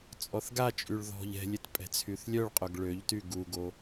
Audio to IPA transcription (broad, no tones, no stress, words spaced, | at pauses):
t͡sʼɔθɡat͡ʃʼyɭ ðɔ̤ʎ ɛ̤lʲet pʼɛ̤t͡sʰyθlʲœɭqʼœɡ ɭøʎty ɡuɡo